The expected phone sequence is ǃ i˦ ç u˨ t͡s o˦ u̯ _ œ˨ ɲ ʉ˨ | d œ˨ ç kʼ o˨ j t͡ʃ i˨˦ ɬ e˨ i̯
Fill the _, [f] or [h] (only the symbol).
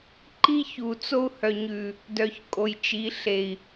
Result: h